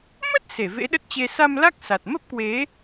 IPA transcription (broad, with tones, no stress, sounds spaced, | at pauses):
m ə˦˥ t̚ s e˧˩ v ḛ˧˥ ɗ ə˦˥ t̚ t͡ɕ e˧ s a˧ m l a˦˥ k̚ s a˨˩ t̚ m ə˦˥ p̚ k w e˨˦